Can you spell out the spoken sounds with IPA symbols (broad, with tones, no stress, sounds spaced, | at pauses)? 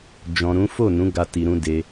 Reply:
d͡ʒ ɔ̃˨ ɾ ũ˨˦ f o˦˨ n ũ˨˦ ɡ a˦ t i˧ ɾ ũ˧ d e˧